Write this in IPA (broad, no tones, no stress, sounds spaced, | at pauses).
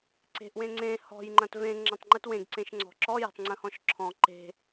ǀ e̤ ʔ w ẽ ŋ͡ǀ ẽ h ɔ̤ j ŋ͡ǃ ɐ̃ t v ẽ ŋ͡ǁ ɐ̃ tˤ ŋ͡ǃ ɨ t w ẽ ɡ ǀ ẽ ʃ ŋ͡ǀ ɔ̤ ǁ ɔ j e̤ tˤ ŋ͡ǀ ə̃ h ɔ̃ ʃ ǁʰ ɔ̃ ǃ e̤